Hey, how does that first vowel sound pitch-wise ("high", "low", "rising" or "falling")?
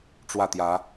falling